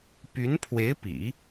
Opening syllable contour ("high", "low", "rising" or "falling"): rising